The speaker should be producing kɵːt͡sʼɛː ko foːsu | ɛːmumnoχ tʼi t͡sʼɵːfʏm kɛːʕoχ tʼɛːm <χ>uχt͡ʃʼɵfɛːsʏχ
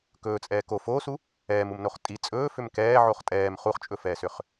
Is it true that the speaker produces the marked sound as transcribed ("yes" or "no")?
yes